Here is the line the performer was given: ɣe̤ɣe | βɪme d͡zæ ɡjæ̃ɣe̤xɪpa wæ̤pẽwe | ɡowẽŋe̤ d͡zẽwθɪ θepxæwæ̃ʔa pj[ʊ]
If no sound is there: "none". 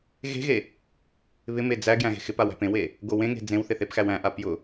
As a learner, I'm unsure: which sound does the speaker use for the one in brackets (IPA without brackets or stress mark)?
ʊ